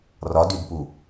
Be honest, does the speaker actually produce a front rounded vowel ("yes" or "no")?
yes